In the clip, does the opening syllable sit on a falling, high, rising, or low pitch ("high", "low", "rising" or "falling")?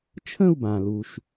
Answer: falling